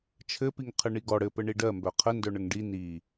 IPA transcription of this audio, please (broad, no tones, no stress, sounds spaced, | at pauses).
t͡ʃʰ ɘ p i ŋ qʰ ɘ ɳ i ɡ ɔ ɽ ɘ p ɘ ɳ i ɖ ɜ m b œ qʰ ə n d œ ɳ ə ŋ ɖ i n i